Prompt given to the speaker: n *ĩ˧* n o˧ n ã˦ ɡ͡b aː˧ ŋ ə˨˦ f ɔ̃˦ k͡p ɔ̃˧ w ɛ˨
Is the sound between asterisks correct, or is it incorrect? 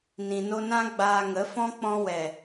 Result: incorrect